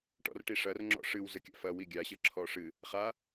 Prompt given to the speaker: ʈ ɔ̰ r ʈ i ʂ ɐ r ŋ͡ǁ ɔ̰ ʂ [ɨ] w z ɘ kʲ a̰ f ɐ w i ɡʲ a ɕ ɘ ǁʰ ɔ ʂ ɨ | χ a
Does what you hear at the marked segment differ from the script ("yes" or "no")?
no